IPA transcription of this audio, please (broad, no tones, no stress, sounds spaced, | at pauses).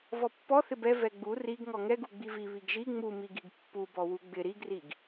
v ɔ pː ɔ θ ɪ b ɛ v ɛ ɡ͡b u r i ɡ ŋ ɔ ŋ ɛ ɡ u ɡ͡b i v i β i ɡ ʒ i ŋ͡m u m i ɡ i ɡ pː u b ɔ w u ɡ͡b ɪ ɾ i ɡ r i ɡ